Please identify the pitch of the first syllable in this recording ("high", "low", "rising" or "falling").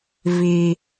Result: low